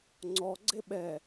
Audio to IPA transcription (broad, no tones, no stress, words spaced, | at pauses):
ŋ͡ǀɔ ɡ͡ǀeɓɛ